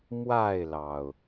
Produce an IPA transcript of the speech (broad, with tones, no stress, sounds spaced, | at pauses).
m w a˥˨ ɪ̯ l ɑ˩ ʊ̯